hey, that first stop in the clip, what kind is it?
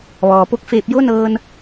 plain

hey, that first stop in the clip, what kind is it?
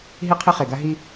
aspirated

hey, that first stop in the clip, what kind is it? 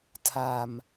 aspirated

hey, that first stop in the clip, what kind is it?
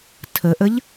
aspirated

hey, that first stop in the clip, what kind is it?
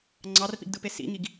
click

